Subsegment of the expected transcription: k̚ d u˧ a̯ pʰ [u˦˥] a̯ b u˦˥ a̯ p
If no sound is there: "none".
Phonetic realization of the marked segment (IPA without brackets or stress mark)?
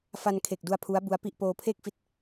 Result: u˦˥